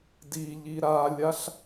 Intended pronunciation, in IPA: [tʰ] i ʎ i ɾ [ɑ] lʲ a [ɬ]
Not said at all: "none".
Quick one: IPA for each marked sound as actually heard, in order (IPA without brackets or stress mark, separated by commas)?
d, a, ɬ